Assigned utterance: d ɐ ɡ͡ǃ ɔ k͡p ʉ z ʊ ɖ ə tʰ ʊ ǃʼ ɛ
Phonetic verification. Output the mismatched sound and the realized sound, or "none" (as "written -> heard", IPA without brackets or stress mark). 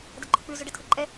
none